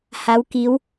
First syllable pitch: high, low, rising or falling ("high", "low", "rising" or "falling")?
rising